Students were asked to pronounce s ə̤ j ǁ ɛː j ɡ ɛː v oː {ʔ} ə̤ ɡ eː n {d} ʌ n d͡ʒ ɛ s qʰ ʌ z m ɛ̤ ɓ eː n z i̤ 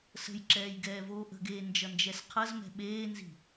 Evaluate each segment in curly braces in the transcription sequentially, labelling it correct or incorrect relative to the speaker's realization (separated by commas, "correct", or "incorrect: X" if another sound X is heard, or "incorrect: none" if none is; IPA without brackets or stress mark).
correct, incorrect: d͡ʒ